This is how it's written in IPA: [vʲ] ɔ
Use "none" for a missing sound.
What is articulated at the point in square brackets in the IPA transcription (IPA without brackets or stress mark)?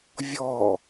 vʲ